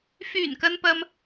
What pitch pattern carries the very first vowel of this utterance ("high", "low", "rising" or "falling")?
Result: low